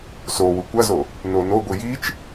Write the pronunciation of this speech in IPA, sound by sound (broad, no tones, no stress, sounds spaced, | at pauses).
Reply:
s o w u kʷ ɐ z o | n o n o ɡʷ i j i t͡ʃ